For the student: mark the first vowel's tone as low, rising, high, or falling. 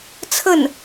falling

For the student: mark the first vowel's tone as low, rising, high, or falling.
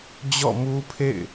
falling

